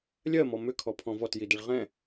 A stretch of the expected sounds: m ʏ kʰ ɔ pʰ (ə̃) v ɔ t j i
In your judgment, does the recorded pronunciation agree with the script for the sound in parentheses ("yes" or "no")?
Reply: no